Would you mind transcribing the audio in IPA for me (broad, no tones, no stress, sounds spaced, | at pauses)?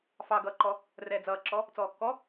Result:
f ɑ ɡ ʌː ǃ ɔ | r ɛː d͡z ʌː ǁ ɔ | t͡s ɔː kː ɔ